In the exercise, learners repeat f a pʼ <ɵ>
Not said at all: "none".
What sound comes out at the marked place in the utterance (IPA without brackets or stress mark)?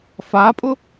ʊ